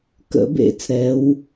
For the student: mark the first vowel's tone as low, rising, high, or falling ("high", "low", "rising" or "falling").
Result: rising